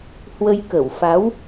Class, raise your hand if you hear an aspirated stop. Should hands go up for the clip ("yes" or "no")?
no